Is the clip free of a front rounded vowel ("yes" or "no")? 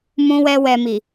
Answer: yes